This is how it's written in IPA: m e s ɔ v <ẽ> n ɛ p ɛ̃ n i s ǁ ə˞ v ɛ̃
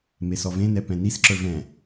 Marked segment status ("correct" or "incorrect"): correct